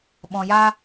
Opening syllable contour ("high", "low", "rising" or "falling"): low